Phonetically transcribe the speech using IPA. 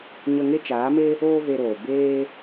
ɲ ə˧ ŋ e˦ t͡ʃ aː˨˦ m e˦ | oː˦ v e˧ ɾ oː˨ b eː˧

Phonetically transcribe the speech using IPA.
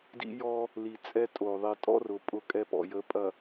d ḭ˦ j ɔ˦ | l i˨ t͡sʼ ɛ˦ tʼ o˨ ðˤ i˨ tʼ ɔ̰˦ r ʊ˨ pʼ ʊ˦ kʼ ɛ˦ p ɔ̰˨ j ə˨˦ pʼ ɐ˨

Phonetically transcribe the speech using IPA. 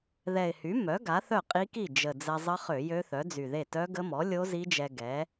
ð ɛ˨˩ ɪ̯ h y˩˥ m œ˩˥ ɡ a˩˥ θ œ˥˩ qʼ i˦˥ k i˥˩ d͡ʒ ə˨˩ d͡z ɛ˧ zˤ ə˦˥ χ ø˧˩˧ j ø˦˥ θ œ˩˥ d͡z y˨˩ ð e˥˩ t œ˦˥ ɡ ə˦˥ m ɔ˩˥ lʲ o˦˥ z i˦˥ d͡ʒ ɛ˧ ɡ ɛ˩˥

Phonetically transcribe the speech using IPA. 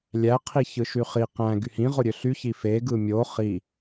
lʲ æ qʰ i ç ɯ ʃ y χ i q æ̃ ɡ y h ĩ ʁ o ɾʲ ø ɬ y ç i f e ɡ ɯ mʲ o χ i

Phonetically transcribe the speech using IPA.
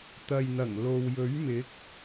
t̪ ɐ˨ j n̪ ɐ˨˩ ŋ l o˨ w j ɵ˨˥ ɥ m ɪ˨˥ k̚

